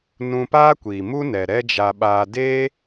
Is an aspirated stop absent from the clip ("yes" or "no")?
yes